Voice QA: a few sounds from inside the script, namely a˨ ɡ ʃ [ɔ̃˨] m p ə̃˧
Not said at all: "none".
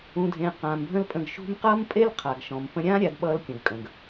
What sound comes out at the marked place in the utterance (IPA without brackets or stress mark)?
ɔ̃˨